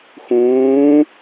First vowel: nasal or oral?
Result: nasal